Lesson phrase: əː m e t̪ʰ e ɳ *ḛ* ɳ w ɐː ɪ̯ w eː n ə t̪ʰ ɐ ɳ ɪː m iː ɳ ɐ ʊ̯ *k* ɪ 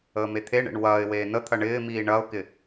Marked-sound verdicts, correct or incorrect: correct, correct

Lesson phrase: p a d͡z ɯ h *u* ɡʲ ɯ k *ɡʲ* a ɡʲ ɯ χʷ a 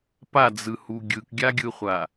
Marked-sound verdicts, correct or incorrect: correct, correct

